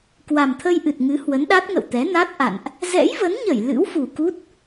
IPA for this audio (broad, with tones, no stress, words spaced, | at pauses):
kwa˨˩mt̪ʰə˧jʔɨ˨˩t̚ŋɨ˨˦ hwə˨˦nɗa˦˥t̚ŋə̰˧˨w t̪ɛ˨˦na˦˥t̚ ʔa̰˧˨nʔ | zɛ̰˧˥jvə˨˦nɲə˧˩j lɨ̰˧˥wfu˨˩ ku˦˥t̚